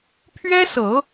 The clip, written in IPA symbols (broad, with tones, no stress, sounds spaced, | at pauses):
pʰ ɥ ɛ˥ s ɤ˨˩˦